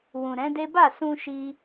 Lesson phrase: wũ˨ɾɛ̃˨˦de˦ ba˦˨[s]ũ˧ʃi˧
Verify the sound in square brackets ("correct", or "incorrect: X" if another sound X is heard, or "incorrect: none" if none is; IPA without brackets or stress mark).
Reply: correct